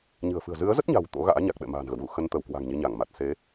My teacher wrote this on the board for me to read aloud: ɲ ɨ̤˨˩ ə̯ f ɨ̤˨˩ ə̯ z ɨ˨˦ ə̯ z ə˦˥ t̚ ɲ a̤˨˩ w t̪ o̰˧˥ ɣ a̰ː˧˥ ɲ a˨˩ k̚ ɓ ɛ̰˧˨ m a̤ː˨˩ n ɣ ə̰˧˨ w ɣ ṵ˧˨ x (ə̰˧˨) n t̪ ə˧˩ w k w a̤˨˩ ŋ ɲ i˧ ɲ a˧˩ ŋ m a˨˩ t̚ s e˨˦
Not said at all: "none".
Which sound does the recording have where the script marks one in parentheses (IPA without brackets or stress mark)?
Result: ə˧